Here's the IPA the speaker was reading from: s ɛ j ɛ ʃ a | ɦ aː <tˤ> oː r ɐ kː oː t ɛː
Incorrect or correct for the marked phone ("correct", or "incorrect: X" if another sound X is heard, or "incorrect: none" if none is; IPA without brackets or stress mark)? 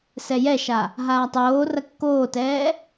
correct